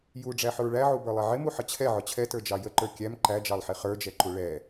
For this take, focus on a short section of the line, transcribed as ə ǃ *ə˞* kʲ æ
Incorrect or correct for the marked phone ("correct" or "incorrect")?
correct